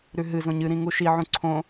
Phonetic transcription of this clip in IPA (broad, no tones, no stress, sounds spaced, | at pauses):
ɾ ʉ ɦ ɨ z õ ɲ ɨ ɾ ĩ ŋ u ʃ i ʕ ũ ǀʰ õ